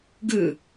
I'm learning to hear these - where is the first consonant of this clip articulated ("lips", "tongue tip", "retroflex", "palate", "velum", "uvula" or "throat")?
velum